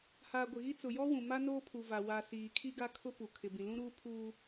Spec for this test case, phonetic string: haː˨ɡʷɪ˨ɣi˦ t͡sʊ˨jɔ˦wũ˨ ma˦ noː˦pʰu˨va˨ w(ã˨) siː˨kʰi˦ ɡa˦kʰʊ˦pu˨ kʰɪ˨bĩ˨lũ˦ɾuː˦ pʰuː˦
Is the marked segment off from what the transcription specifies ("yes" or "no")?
yes